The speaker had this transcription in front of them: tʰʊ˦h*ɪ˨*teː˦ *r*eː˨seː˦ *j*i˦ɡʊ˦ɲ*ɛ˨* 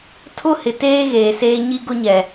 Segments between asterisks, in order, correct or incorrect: correct, incorrect, incorrect, correct

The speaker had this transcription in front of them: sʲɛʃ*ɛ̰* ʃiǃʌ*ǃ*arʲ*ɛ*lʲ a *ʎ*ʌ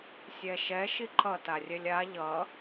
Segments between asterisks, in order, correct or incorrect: incorrect, incorrect, correct, correct

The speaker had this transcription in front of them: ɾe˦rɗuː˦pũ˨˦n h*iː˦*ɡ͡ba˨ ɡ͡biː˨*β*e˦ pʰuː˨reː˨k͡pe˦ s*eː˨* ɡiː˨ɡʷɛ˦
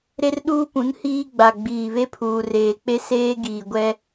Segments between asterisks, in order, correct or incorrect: correct, correct, incorrect

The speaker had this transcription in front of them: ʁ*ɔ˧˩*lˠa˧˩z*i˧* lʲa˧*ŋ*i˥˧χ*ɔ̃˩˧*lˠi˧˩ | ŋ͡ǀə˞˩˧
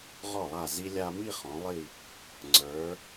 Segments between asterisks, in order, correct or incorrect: correct, correct, incorrect, correct

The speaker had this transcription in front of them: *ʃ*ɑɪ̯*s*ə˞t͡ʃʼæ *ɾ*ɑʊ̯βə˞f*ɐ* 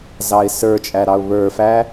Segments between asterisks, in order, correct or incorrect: incorrect, correct, correct, incorrect

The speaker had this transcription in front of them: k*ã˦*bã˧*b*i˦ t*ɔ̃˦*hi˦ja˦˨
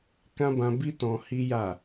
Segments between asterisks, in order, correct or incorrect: correct, correct, incorrect

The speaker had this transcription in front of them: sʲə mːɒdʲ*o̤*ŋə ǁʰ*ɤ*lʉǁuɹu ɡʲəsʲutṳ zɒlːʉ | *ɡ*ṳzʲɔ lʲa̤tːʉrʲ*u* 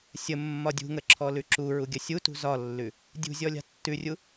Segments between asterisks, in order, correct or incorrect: incorrect, incorrect, incorrect, correct

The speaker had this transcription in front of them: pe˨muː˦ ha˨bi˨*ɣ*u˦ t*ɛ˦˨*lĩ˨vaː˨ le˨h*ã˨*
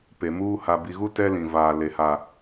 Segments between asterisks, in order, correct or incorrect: correct, incorrect, incorrect

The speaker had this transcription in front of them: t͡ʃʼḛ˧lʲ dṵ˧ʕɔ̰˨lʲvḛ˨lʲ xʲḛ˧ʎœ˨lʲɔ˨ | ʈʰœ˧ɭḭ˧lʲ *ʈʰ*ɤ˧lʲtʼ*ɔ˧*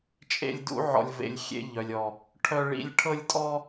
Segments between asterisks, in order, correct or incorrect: correct, correct

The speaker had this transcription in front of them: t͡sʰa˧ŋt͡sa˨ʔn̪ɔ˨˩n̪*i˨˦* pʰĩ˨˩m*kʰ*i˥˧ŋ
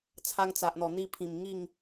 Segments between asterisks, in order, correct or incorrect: incorrect, incorrect

